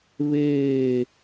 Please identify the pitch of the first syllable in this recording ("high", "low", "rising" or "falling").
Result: falling